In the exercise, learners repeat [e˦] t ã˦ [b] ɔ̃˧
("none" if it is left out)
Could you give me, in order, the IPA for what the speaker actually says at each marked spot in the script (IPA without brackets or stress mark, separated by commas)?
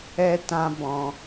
ɛ˦, b